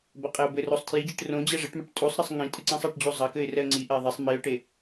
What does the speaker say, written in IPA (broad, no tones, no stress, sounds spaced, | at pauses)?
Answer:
b ɐ qʼ e ʊ̯ b ɘ r o sˤ tʰ j i d͡ʑ ɨ ʈ r õ d͡ʑ ɛ ʐ ɘ ʈ m ɐ ʈ tʼ u sˤ ɾ ɘ sˤ ŋ ĩ tʼ ɨ ǀ ĩ sˤ a ʈ d͡ʑ u zˤ ɐ k ɘ ɪ̯ r ɛ ə̯ ŋ͡ǀ i ʔ ɛ ɪ̯ ðˤ e sˤ m i ʊ̯ ʈ e